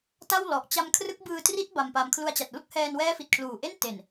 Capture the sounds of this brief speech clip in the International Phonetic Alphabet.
t a˥˩ w l ɔ˨˩ ʔ t͡ɕ a˦˥ m kʰ r ɯ˦˥ k̚ b ɯː˧ t r i˦˥ t̚ b a˧ m p a˧ m kʰ l u˧ a̯ t͡ɕ a˨˩ t̚ l u˥˩ k̚ h ɛː˧ n w ɛː˦˥ f i˨˩ t̚ kʰ l uː˨˩ ʔ e˥˩ n t e˨˩ n

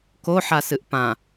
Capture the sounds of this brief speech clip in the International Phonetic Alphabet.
k o ħ a s ɨ ʔ p ã

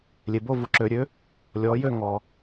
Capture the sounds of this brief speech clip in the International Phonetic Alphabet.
lʲ e˨ b o˥˧ v u˨ ǁ ø˨˩˦ ɾʲ ø˨˦ | lʲ ɔ˨˦ j ø˥˧ ŋ ɔ˨

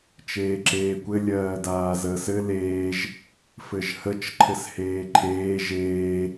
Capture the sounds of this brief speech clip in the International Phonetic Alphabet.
t͡ʃ eː ǁ eː kʷ ɘ lʲ ɜː d aː z əː s ɘ l eː ʒ | f ɘ ʒ h ə t͡ʃ ǃʰ ɘ s h eː ǃʰ eː ʒ eː

